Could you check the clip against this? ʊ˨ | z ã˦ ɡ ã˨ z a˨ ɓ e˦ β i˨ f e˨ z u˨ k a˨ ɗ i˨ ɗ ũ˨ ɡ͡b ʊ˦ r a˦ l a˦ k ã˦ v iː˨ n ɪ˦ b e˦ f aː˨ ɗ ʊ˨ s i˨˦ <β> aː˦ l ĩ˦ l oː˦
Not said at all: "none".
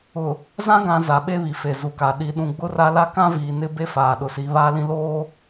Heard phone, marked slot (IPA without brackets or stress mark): β